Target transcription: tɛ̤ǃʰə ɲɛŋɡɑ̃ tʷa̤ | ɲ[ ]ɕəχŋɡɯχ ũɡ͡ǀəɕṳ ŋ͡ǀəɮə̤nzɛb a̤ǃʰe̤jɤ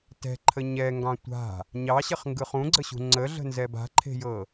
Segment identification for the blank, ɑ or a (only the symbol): ɑ